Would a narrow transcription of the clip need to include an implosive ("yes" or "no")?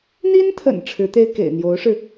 no